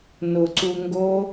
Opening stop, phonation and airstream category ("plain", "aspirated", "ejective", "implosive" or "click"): click